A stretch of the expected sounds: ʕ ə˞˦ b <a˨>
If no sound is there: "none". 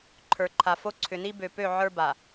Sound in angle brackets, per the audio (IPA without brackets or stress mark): a˨